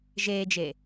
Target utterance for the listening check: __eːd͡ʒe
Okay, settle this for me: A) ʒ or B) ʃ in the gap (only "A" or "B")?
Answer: A